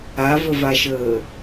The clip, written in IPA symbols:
a v ə v a ʃ əː

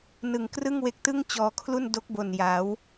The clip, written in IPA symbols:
n ɯ˨˩ ŋ k r ɯ˥˩ ŋ w e˦˥ k̚ t ɯ˥˩ ŋ t͡ɕ ɔː˧ kʰ l u˥˩ n d o˦˥ k̚ b o˨˩ n j a˩˦ w

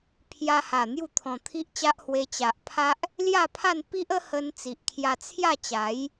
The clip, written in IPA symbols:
pʰ j a˧ h a˨˩ n̪ j u˥˧ t̪ʰ ɔ̃˧ t̪ʰ i˦ ʔ t͡ɕ a˦ ʔ h w e˧ t͡ɕ a˨ ʔ pʰ a˦ ʔ | l j a˥˧ pʰ a˥˧ n p i˦ ʔ ə˦ h ə˧ n t͡s i˨ ʔ kʰ j a˧ t͡sʰ j a˥˧ t͡ɕ a˨˦ j

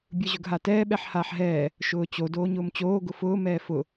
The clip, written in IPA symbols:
bʲ ɯ ʑ ʊ ɡ ɦ a t ɛː ɓ ɛ ħ h aː ħ ɦ ɛː | ʃ ʊː t͡ɕ o d oː ɲ ʊː m t͡ɕ oː ɡ ʊ f ʊː m ɛː f ʊ

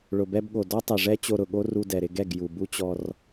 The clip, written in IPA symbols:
ɭ ʊ˨ b ɛ˧ b ɠ o˨ d ɔ˦ tˤ e˨ ʐ ɛ˦ t͡ɕ o˧ ɾ ʊ˨ ɠ o˦ r u˧ d ɛ˨ ɾ ɪ˧ ɡ ɛ˦˨ ɡ j u˨ b u˦ t͡ɕ ɔ˧ r

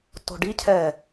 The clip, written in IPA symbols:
t o̤ ɖ i cʰ ɛ

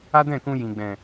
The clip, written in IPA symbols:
a˦ d ɛ̃˦˨ k ũ˧ j ĩ˨ ɡ͡b ɛ̃˨

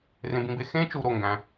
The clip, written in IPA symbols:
r ẽ˧ b ĩ˧ b e˥ x ẽ˥ t͡ʃ u˧ ɾ o˩ ŋ ɡ æ̃˩

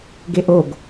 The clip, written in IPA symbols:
ɡ e ʔ o ɡ

